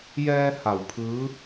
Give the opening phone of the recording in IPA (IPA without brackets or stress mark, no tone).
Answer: j